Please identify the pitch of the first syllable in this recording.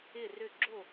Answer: falling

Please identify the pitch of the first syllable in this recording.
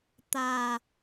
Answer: low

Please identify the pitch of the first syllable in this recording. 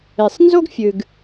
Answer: low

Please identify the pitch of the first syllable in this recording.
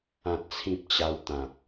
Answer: low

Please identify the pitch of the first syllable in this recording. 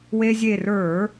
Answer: high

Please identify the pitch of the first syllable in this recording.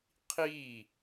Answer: falling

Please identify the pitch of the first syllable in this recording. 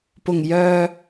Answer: low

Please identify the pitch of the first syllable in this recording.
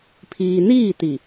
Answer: low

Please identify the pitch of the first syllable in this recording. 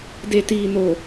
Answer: low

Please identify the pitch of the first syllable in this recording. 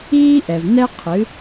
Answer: high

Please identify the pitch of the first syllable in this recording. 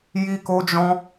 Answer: high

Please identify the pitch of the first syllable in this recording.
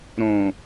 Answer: low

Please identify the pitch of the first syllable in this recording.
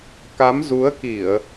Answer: rising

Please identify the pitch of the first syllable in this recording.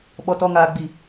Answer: low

